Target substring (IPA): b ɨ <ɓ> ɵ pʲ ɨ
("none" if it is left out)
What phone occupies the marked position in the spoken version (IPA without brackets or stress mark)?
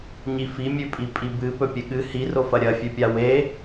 p